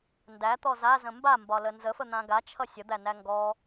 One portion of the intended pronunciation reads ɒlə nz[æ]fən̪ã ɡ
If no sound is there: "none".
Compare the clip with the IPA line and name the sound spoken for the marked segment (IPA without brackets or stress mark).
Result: ə